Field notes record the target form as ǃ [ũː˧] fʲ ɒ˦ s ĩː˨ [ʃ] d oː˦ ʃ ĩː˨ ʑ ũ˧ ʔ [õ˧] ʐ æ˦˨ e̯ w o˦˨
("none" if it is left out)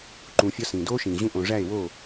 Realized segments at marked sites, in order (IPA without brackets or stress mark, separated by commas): ũː˧, none, õ˨